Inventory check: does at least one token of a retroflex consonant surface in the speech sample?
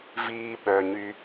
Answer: no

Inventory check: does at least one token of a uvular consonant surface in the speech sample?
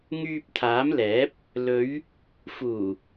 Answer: no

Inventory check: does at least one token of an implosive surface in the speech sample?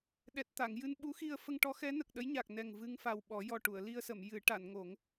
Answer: yes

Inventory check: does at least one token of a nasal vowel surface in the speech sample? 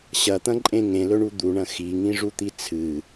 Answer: yes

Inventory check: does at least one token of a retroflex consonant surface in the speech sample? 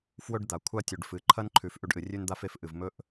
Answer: yes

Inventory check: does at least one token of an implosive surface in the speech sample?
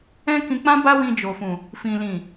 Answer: no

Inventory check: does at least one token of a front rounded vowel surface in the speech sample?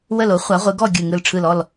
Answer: no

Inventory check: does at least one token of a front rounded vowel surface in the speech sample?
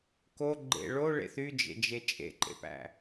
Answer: yes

